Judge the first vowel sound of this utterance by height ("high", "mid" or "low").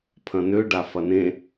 low